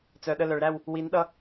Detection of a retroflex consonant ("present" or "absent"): present